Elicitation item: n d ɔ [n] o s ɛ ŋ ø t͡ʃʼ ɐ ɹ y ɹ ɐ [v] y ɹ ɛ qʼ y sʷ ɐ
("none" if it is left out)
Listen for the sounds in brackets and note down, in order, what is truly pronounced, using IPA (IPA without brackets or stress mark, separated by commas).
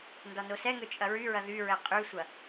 n, ð